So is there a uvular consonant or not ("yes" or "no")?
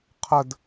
yes